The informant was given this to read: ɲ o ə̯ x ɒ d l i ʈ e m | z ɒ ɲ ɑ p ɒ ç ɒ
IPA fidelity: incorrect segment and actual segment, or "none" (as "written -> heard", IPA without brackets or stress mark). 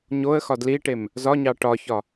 p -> ʈ